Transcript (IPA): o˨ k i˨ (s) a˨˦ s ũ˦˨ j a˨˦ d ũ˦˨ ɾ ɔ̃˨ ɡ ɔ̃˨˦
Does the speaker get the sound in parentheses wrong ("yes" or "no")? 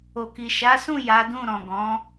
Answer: yes